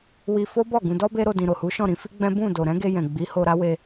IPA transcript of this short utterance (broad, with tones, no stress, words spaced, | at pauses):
wi˧ fo˦bɔ˦˨ ɡũ˧dɔ˦ be˦ɾo˧ dĩ˨ɾo˨hu˨˦ʃɔ̃˦˨ ɾĩ˨˦fi˦ɡ͡bɛ̃˦ bũ˦˨do˨ ɾɛ̃˨˦ɡe˧ jɛ̃˨ ɡ͡bi˨˦ho˧ɾa˦ we˧